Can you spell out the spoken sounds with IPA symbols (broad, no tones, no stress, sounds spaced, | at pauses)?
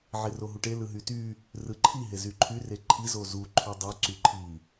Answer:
ʕ e r o ɦ u ʈ e l ɯ ɦ y t y | r ɯ ǃʰ i ɦ e z y ǃʰ y r e ǃʰ i z o z u ǃʰ y dˤ y ǀ y ǃʰ i